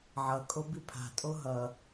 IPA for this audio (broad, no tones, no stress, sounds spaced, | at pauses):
ʕ ʌ kʼ o b i pʰ a̤ tʼ o ɦ ʌ